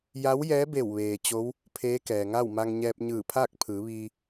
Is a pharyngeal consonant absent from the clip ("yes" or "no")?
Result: yes